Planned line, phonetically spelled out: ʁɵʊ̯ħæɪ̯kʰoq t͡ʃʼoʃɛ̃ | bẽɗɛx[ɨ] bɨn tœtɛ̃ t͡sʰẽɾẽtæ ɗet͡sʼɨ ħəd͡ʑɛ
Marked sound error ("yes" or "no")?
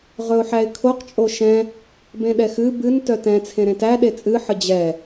no